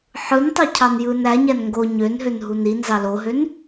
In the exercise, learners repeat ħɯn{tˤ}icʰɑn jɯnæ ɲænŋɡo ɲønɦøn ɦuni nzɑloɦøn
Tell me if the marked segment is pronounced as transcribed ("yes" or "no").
yes